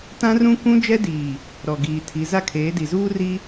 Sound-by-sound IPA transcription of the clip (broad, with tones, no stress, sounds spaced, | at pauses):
t ã˦ r ũ˦ kʷ ũ˦ d͡ʒ ɛ˦ d iː˨ | ɾ ɔ˨ ɡ iː˨ tʰ i˨˦ z a˦ kʰ eː˨˦ d i˨ z uː˦ r i˦